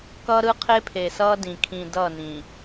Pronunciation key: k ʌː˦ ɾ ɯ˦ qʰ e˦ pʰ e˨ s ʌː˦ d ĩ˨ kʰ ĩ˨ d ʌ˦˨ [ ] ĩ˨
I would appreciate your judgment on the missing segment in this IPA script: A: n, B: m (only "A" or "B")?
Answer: A